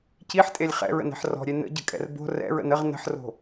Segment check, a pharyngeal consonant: present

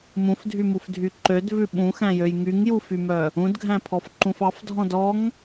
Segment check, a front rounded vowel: present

